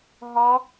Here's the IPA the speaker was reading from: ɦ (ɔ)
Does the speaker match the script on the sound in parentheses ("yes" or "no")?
yes